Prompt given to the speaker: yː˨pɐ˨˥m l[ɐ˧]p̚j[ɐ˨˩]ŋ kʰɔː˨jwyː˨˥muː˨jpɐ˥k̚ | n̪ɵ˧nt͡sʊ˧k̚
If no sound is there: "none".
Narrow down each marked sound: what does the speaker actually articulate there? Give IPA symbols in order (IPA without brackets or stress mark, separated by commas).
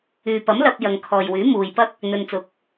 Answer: ɐ˧, ɐ˨